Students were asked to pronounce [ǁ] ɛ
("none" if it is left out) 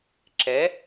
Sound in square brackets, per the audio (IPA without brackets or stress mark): ǁ